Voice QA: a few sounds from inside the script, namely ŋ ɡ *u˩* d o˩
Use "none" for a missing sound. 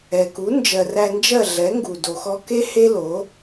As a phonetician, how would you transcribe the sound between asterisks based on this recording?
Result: u˩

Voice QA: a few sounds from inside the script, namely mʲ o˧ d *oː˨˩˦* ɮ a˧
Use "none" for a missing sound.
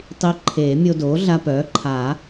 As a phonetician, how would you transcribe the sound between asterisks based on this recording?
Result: oː˩˥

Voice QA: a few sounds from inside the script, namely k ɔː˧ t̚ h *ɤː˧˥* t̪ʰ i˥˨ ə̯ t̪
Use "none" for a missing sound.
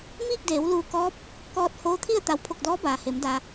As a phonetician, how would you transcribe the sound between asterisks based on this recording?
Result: oː˧˥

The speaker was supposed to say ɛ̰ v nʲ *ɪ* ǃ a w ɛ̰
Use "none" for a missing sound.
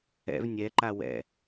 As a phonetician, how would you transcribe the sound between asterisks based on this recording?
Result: ɛ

